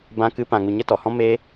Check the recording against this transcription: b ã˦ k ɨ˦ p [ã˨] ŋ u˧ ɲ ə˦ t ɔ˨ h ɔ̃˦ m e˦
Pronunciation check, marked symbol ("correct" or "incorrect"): incorrect